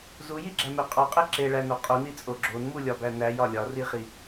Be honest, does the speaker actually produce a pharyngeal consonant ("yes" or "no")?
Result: no